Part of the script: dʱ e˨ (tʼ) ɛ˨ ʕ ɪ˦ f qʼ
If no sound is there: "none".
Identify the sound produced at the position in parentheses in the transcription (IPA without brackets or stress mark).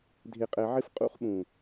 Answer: qʼ